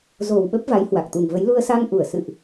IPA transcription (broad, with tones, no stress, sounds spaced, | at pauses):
z o˨˩ w ɓ ə˦˥ p̚ v a˨˦ j h w a˨˩ k̚ t̪ u˨˩ ŋ v ə˨˦ j l u˧ ə̯ s a˧ ŋ ʔ u˧˩ ə̯ s ɨ̰˧˨ ʔ